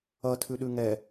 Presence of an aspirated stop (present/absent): present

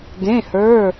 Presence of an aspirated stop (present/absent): absent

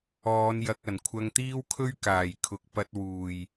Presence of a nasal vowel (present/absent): absent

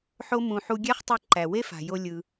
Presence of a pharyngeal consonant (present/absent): present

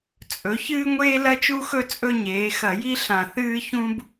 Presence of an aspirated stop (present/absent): absent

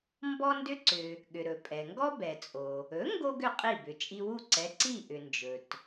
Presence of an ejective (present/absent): present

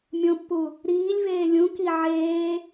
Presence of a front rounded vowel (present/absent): absent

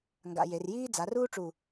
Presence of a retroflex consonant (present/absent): present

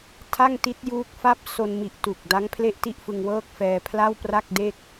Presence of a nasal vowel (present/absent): absent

